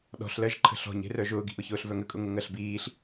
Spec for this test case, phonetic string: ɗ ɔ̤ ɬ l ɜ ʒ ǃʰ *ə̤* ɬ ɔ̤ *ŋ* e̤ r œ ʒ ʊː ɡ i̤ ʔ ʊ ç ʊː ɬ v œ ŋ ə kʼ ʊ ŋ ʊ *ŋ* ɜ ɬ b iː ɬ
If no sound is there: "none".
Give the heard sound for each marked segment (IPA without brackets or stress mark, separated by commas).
ə̤, ɲ, ŋ